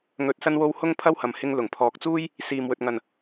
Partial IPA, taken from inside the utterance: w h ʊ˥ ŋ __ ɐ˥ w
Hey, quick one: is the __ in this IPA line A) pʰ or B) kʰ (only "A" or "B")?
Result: A